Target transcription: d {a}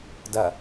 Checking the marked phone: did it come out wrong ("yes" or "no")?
yes